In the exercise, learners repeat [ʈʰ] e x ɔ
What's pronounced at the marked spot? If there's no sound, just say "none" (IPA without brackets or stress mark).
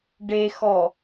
ɖ